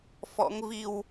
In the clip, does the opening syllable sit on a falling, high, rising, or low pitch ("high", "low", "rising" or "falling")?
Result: rising